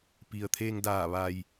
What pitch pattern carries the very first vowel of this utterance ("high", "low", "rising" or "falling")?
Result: low